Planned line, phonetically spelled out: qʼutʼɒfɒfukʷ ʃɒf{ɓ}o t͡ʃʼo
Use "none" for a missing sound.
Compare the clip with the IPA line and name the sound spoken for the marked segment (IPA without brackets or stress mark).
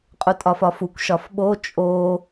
ɓ